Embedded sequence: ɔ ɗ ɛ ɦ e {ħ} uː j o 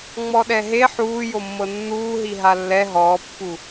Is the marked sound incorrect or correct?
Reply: correct